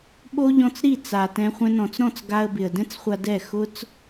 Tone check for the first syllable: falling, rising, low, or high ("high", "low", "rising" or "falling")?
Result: high